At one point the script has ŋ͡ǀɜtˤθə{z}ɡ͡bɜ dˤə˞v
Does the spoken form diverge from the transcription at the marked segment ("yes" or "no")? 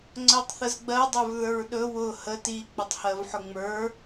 no